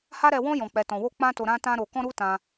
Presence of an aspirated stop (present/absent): absent